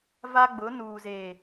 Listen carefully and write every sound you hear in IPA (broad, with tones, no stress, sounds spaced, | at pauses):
v a˦ ɡ͡b ʊ˨˦ n uː˨ z eː˨